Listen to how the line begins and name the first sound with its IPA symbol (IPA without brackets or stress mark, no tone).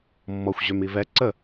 mː